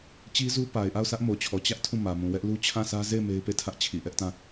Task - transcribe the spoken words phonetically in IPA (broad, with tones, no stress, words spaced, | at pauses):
t͡ɕi˦zu˦ pa˨ɪ̯ʔa˦˨ʊ̯sä˦ʔ mo˨t͡ɕʰɔ˨ t͡ɕä˦ʔ tʰũ˦˨mä˨mũ˨wɛ˦ʔ lu˦ t͡ɕʰã˦˨sä˦ ze˦˨ɪ̯ me˦ɪ̯pe˦˨tʰä˦ʔt͡ɕʰi˨ ʔɛ˦ʔtã˦˨